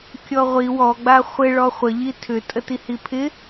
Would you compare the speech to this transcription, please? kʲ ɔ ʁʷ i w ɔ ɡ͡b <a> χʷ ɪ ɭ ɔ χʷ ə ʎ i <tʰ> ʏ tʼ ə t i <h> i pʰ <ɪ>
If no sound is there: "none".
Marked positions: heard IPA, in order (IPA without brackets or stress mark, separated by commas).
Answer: a, tʰ, h, ɪ